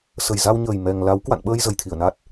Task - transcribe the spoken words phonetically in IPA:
sə˨˩jza˧wɲəː˨˩j mɛ˨˩ŋ la˨˦w kwa̰˧˨nɓəː˧j zə˨˩jt̪ʰi˧˩ə̯ na˦˥t̚

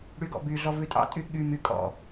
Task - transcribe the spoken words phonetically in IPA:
ɽyɡɔ̰byɮɔ vʉtʼɑ̰tʼy ɠymy kʼɔ̰

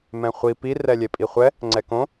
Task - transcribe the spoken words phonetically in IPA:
mɛ̃χʷi pi rɛlʲepʼiχʷɛ | ŋ͡ǀɛkõ

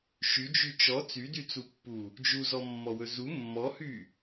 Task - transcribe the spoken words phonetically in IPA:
ʃyd͡ʒy t͡ʃɔ t͡sydyt͡supːu | d͡ʒuzɔmːɔwɵ zu mːɔhy

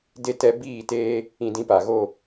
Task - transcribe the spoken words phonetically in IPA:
de˧ tɛ˧ biː˦˨teː˦ | ĩ˧dĩ˧pa˨ɣo˦˨

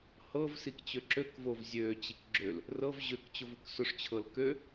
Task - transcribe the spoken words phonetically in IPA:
hɤvsik t͡ɕøǁøkvov zʲøt͡ɕik ɡ͡ǁøl | rɤv ʑøkt͡ɕʊv ʊksʊʂt͡ɕʰɤl kø

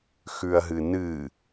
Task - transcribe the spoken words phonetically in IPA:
xʉɐ̯ɦɨnɨ

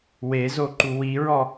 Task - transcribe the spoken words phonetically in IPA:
wezoǃu wiɹɔ

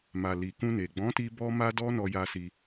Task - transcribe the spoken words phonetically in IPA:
ma˨li˨kũ˧ne˨ ɡ͡bɔ̃˨˦ti˧ bɔ˦ma˦dɔ˦ nɔ˧ja˧si˧

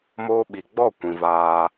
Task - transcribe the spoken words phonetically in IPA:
moː˧ɓi˨ɡ͡bɔ˦˨ kʷĩ˧vaː˦

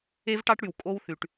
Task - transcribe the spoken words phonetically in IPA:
e˦vʈɑ˦ʈɽy˨w kʼo˦wθy˨ʈ

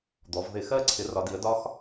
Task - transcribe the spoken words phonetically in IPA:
d̪ɔ˩˧vðɪ˧˩˧ xɜ˦˨ǀʰɪ˩˧ rɒ˩˧di˩˧ə̯ dɒ˥x

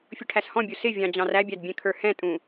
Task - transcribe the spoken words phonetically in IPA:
fʲʊʈʰæshɔ̃bʲu sɪ vʲɑ̃d͡ʑɑ̃ræbʲæd bʲɛ̃kʰə˞hɛ̃tʼũ

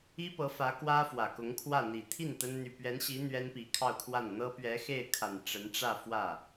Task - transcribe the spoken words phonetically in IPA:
i˥pɤ˧˥fä˧˥ kwä˥fwä˨˩kʊ˧˥ŋkʰwä˥˩ n̪i˨˩t̪ʰi˥˩n t̪ə˥n n̪y˨˩pɥɛ˧˥nɕi˧˥ n̪ɥɛ˥npi˧˥kʰɑ˥˧ʊ̯kʰwa˥˩n n̪ɤ˥pɥɛ˧˥xe˥˩ɪ̯kʰa˨˩n ʈ͡ʂə˧˥nʈ͡ʂä˥˧ fwä˥˩

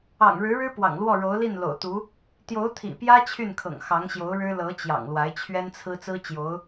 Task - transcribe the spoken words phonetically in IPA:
ɑ̰˨˩ŋɻɻ̩˧˥ɻɻ̩˥ pwɑ̰˨˩ŋlwɔ˥˩ ɻo˧˥ʊ̯li˥˩nlo̰˨˩ʊ̯t̪u˧˥ | t̪jo˧˥ʊ̯t̪ʰḭ˨˩pjä˥ t͡ɕʰy˥˩n kʰɤ̰˨˩ŋ xɑ˧˥ŋɕjo˧˥ʊ̯ɻɻ̩˥ lɤ˧˥t͡ɕjɑ̰˨˩ŋ lwa˧˥ɪ̯t͡ɕʰɥɛ˥nt͡sʰɹ̩˥ t͡sɹ̩˥t͡ɕjo˧˥ʊ̯

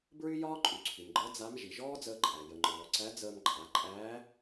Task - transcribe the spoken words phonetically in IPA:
bɹy˥ jɒː˥ǃʼy˩˧ǀʰy˩mɡ͡ǃəː˧˥ d͡za˧˥m ʒi˩ʒɔː˥d͡zəː˧ǃʼæ˩ jə˩ŋ͡ǃɔː˩ ǀæ˧˥d͡zəː˧mǃʼa˩˧ ǃʼæː˧˥

